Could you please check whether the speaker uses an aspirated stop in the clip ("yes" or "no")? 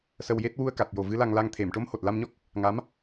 yes